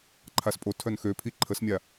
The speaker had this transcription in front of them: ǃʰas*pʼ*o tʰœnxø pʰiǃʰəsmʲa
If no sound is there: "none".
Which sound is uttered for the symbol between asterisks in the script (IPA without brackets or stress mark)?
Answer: pʼ